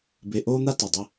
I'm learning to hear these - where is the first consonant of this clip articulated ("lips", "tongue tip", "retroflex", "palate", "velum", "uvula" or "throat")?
lips